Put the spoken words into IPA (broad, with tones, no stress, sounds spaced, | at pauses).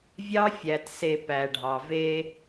vʲ ɑ˦ fʲ æ˨ t s e˨ p æ˨ ɖʱ ɑ˨ v e˦